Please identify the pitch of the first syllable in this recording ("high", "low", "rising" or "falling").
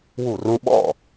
falling